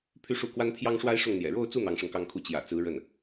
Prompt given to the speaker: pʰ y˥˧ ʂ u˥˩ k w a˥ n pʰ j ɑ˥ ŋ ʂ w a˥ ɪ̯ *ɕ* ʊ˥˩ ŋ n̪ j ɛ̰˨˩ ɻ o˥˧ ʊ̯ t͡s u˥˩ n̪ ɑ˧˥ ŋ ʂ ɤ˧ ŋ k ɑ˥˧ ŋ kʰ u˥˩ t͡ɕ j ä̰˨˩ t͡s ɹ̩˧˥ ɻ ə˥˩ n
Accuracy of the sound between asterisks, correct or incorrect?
incorrect